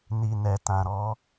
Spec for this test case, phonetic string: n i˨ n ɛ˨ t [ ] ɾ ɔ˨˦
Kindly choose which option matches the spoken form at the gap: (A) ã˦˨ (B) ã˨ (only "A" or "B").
B